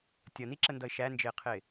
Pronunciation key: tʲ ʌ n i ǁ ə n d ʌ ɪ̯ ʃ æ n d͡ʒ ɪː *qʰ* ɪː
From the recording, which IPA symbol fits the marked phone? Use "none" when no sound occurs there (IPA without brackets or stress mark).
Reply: qʰ